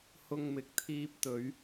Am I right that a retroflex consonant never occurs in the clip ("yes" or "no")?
yes